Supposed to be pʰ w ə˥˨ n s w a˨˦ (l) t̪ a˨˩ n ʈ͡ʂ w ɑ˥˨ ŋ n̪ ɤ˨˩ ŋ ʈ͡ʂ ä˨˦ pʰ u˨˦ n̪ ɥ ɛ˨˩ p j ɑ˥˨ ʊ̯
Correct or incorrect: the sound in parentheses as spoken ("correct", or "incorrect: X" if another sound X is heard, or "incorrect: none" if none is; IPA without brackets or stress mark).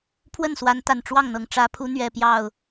incorrect: n